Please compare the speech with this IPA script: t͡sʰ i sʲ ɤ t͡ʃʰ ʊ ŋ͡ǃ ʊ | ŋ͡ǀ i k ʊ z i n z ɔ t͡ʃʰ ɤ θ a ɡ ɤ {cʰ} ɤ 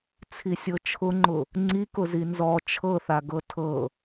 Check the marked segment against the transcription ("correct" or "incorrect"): incorrect